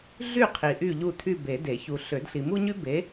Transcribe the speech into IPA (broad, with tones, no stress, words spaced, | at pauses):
ɮy˦˨ qʰi˨ʔy˦˨ʎu˦˨ tʰy˦˨be˨˩˦ de˨˩˦çu˨ ɬø˨˩˦dɬi˨mu˥ɲy˥ be˨˥